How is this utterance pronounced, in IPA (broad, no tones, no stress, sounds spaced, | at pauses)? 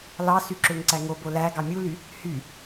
l ɑ s y ǁ ø ŋ ǀ æ ŋ o b o l æ ɡ ɑ mʲ u l y | h y